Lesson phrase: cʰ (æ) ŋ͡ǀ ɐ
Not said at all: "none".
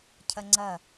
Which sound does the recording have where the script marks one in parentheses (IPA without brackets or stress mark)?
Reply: ɐ